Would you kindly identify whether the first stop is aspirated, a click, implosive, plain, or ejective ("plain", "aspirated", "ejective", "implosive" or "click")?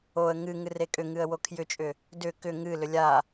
ejective